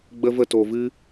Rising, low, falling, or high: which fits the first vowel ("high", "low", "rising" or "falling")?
high